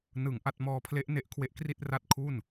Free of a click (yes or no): yes